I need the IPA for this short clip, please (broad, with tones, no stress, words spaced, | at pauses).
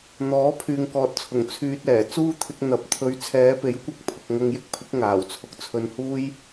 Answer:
n̪ɔː˨˥pʰyː˨ŋkɔː˨t̚t͡sʰʊ˨˩ŋ t͡sʰyː˧t̚ɛː˨˩ t͡suː˥t̪ʰɪ˧k̚ n̪ɐ˨p̚t̪ʰɵ˨˧ɥ t͡sʰɛː˨˧pe˨˥jkʷɐ˧k̚ pʰʊ˨k̚ ŋɐ˧ŋjɪ˥k̚pʰɪ˨˥k̚ ŋaː˨˩wt͡sʰʊ˧k̚t͡sʰɵ˧n huː˥j